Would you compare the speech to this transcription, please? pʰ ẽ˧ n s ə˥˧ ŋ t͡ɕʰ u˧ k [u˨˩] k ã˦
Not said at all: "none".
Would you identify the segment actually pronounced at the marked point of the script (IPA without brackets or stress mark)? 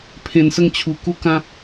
u˥˧